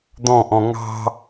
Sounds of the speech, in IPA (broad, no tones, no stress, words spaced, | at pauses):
d̪ɔ̃ʔɔ̃ ŋɑ̤